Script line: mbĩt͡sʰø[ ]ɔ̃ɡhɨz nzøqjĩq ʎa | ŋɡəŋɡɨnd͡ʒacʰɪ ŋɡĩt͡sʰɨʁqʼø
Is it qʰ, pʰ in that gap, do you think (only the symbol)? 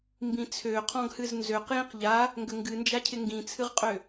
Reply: qʰ